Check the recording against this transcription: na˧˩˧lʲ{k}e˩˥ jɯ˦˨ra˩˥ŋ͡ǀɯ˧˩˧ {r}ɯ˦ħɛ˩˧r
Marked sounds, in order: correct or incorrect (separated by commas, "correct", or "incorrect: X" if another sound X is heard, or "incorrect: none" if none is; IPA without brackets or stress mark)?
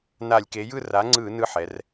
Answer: correct, incorrect: n